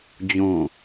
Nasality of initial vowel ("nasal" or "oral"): nasal